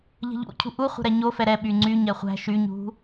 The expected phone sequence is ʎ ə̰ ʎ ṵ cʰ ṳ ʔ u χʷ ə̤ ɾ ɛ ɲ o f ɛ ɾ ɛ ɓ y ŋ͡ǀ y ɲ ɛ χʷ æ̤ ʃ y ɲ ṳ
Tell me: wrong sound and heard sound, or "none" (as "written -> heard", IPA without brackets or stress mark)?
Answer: ə̰ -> ə̤